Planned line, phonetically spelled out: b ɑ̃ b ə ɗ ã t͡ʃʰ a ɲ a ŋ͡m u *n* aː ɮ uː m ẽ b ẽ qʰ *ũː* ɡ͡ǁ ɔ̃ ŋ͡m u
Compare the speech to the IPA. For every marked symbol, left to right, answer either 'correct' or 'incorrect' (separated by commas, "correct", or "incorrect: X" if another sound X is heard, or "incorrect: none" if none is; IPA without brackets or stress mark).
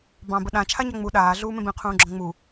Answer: incorrect: ɗ, correct